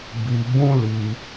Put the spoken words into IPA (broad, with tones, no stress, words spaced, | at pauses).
bi˧bũ˦li˧